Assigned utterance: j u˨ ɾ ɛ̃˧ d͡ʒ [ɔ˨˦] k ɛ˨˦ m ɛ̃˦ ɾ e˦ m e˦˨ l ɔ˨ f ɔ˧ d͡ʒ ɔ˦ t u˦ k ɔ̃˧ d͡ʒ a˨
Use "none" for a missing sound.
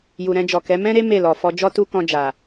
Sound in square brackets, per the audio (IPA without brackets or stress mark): ɔ˨